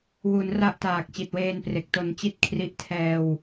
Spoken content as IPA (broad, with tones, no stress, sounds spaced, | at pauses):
w u˩˦ n r a˥˩ ʔ t aː˨˩ k̚ t͡ɕ i˨˩ t̚ w eː˧ n p r e˨˩ k̚ t o˧ n t͡ɕ i˥˩ t̚ kʰ r i˦˥ ʔ tʰ ɛː˧ w